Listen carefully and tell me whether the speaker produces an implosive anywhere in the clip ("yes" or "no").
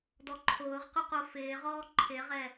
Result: no